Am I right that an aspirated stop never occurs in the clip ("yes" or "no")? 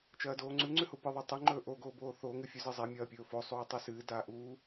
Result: yes